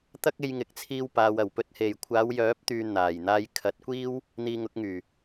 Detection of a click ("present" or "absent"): absent